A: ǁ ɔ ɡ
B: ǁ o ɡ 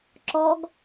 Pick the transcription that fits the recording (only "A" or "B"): A